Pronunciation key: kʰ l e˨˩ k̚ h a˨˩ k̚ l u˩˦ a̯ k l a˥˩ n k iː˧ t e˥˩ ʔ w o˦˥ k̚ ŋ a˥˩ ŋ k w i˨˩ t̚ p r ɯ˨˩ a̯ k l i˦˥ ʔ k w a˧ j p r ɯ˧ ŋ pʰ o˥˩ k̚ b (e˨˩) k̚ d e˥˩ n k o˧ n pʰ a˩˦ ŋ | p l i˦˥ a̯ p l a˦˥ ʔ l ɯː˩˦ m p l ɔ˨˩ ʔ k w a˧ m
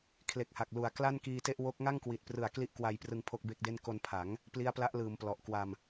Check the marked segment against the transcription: incorrect: e˥˩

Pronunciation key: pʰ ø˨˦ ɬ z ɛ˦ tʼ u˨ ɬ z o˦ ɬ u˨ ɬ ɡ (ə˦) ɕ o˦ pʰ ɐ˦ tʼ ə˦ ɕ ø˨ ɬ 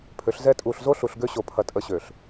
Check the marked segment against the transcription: incorrect: ø˦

